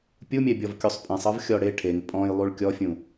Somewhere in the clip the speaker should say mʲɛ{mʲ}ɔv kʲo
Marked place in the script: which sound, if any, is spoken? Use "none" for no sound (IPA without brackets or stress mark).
bʲ